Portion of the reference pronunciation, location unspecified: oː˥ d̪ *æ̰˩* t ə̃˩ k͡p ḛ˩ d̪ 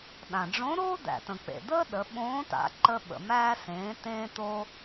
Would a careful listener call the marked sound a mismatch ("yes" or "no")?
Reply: no